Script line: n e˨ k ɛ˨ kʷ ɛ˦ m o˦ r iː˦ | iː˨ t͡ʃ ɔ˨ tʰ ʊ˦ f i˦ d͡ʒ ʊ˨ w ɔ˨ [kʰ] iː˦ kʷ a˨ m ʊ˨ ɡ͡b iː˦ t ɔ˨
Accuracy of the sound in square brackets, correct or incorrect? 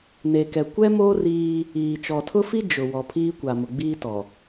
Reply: incorrect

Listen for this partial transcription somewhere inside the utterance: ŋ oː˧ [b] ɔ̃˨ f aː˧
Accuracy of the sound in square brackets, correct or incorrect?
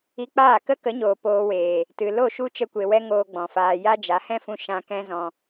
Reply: incorrect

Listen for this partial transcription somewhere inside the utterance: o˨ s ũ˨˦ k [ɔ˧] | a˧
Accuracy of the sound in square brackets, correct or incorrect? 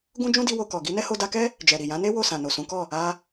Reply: incorrect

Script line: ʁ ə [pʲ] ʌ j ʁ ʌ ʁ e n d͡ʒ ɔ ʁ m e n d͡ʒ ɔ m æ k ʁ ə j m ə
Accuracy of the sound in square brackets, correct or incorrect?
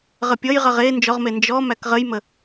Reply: correct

